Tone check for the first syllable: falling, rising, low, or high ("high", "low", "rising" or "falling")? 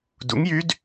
rising